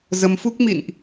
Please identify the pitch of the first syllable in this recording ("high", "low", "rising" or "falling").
rising